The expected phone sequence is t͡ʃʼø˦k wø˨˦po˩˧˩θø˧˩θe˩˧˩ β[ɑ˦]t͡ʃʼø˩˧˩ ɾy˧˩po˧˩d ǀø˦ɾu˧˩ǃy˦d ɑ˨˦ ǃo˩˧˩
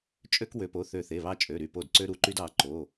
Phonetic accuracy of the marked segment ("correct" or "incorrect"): correct